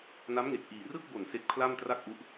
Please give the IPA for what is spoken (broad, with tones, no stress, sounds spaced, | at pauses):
n a˦˥ m ŋ e˨˩ k̚ ʔ iː˨˩ r ɯ˥˩ k̚ b o˨˩ n s e˦˥ k̚ pʰ l a˥˩ m t r a˥˩ k̚ ʔ u˦˥ ʔ